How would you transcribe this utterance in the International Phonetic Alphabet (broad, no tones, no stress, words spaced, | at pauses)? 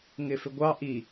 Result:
ŋɪfɪɡʷɑ ʔi